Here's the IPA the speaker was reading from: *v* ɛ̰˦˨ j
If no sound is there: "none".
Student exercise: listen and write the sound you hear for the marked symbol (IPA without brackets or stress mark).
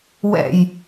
w